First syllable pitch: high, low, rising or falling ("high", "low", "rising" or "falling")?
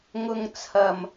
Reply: low